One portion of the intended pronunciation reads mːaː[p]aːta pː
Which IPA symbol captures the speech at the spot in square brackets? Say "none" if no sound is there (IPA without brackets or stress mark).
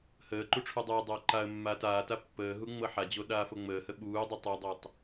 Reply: t